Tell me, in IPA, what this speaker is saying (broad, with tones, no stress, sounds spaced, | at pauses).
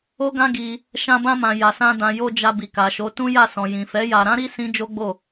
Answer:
o˦ ɡ ã˦ ɡ i˧ | ʃ ã˧ b ã˧ m ã˨ j a˨ s ã˧ d ã˨ j o˧ d͡ʒ a˧ b i˨ k a˨ ʃ o˨˦ t ũ˦ j a˦˨ s ɔ̃˨ j ĩ˨ f ɛ˨˦ j a˧ ɾ ã˦ ɾ i˦ s ĩ˦ d͡ʒ o˦ ɡ͡b o˦˨